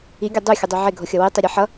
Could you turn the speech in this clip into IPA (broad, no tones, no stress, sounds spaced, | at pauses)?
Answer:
i ɡʲ o dˤ u xʲ ʌ dˤ u ʕ e ɡʱ o xʲ ʌ w i tˤ i ɾʲ e ħ ʌ